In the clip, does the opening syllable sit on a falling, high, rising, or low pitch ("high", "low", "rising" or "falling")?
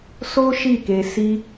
high